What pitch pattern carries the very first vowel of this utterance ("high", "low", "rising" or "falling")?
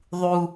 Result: low